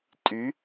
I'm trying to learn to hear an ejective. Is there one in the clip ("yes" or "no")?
yes